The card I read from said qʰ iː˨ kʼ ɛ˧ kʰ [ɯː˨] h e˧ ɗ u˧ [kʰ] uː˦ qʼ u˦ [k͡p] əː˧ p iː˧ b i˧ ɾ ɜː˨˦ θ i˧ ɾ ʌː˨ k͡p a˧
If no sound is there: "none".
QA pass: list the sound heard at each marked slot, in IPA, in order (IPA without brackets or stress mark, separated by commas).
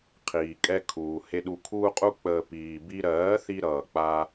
uː˨, kʰ, k͡p